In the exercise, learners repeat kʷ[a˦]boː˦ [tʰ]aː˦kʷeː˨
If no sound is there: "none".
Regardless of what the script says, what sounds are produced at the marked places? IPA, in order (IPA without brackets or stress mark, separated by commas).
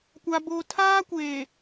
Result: a˦, tʰ